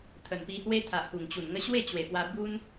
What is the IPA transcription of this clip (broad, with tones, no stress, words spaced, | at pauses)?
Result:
t̪ʰə˨˩npi˧hwe˦t̪ʰa˨ʔ hu˨˩ŋt͡ɕu˨˩nŋə˧ ɕwe˥˧t͡ɕwe˨˩pwa˧ bu˦n